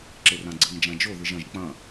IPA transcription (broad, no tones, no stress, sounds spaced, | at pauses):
ǁ e r ã ɡ͡ǀ ɨ ŋ d͡ʒ ã d͡ʒ o ð ɨ ʒ ɐ̃ ʒ k͡p ɐ̃